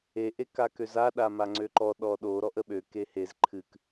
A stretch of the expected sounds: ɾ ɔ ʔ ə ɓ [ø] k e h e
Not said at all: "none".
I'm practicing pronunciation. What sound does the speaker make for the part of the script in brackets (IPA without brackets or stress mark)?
ø